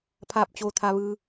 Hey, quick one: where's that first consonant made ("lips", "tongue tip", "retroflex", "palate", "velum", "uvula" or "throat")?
lips